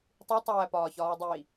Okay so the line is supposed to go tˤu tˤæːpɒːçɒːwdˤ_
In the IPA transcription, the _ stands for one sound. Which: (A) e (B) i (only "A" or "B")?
B